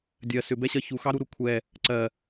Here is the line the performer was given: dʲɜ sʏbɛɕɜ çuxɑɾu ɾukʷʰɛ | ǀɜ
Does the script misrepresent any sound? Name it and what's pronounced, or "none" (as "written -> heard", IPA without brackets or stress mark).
none